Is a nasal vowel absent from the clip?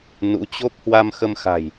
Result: yes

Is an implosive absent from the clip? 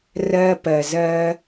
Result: yes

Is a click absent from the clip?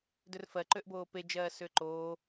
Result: no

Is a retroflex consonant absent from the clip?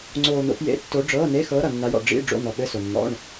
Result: no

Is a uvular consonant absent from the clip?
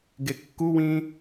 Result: yes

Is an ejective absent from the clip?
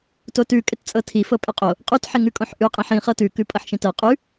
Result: no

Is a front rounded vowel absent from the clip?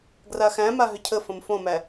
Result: no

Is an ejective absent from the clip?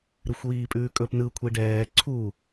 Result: no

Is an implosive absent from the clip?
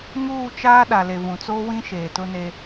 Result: no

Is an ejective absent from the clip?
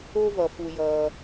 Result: yes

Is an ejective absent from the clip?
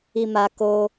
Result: yes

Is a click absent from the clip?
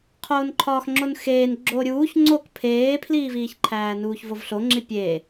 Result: no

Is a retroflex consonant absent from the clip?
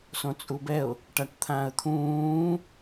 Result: no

